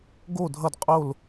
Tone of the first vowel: falling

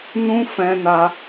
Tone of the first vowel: high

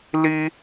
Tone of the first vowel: high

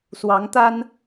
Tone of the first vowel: rising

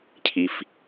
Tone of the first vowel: high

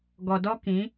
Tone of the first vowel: low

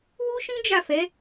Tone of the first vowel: high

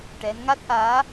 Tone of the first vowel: rising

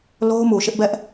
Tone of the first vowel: high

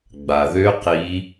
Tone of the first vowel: low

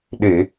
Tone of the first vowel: low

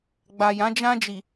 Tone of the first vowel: low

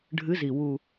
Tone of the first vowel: rising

